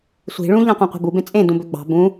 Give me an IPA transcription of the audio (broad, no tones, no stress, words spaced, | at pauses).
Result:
sʷi̤ ɭũ ʎɑ̃qʷɑ̃qʷi̤bu bẽt͡sʼẽ dũbøɡ͡bɑ̤ bũ